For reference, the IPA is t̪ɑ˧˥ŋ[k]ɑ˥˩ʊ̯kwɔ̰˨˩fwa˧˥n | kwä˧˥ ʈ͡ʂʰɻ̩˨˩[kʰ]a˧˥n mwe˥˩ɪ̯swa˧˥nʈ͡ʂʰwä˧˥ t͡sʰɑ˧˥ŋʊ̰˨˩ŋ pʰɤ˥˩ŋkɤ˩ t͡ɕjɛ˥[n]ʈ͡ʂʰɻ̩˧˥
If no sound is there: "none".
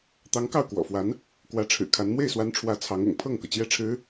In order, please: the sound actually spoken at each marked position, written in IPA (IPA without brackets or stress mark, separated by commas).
k, kʰ, none